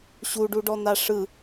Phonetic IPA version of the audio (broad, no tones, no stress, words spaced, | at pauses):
ɕuɖuɖɔ n̪aʂɯ